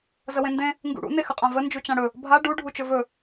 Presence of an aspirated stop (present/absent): absent